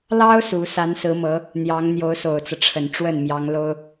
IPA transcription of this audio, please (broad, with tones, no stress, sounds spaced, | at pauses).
l ɑ˥ ʊ̯ s u˧˥ s a˧˥ n s ɹ̩˧˥ m ɤ˧˥ | n̪ j ɑ˧˥ ŋ n̪ j o˧˥ ʊ̯ s o˨˩ ʊ̯ t͡s ɤ˦ ʈ͡ʂʰ ə˨˩ n ʈ͡ʂ w ə˥˩ n m j ɑ˧˥ ŋ l o˥ ʊ̯